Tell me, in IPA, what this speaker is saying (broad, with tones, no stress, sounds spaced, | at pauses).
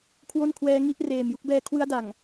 kʰ w o˥˩ n kʰ w ɛː˦˥ ŋ i˥˩ ʔ r eː˨˩ m j u˦˥ k̚ b ɛː˧ kʰ w ɯ˦˥ a̯ d a˨˩ ŋ